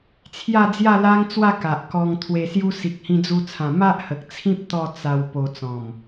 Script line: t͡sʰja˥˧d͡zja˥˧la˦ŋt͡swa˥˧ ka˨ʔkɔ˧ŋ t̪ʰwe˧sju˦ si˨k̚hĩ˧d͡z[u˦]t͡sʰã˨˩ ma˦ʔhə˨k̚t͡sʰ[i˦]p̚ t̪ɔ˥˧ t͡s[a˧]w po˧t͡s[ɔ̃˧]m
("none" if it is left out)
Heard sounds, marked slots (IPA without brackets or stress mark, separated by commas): u˧, ĩ˦, a˧, ɔ̃˨˩